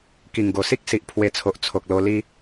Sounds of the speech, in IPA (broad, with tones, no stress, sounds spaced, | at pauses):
k i˨˩ ŋ ɡ o˨˩ s i˦ k̚ s i˨ ʔ pʰ w e˧ t͡sʰ o˨ ʔ t͡sʰ o˨ k̚ l o˧ l i˦